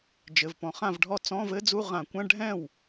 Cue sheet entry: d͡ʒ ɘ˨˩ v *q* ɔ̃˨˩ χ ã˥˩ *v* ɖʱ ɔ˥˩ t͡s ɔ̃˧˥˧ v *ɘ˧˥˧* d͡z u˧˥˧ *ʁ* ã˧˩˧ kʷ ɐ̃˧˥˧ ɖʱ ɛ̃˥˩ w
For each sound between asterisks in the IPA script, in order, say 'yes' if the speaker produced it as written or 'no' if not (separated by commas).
no, yes, no, yes